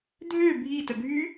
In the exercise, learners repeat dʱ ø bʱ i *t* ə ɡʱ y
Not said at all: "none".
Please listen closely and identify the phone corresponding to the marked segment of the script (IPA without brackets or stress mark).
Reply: t